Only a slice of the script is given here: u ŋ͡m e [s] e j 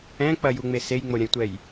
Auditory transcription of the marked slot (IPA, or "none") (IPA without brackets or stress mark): s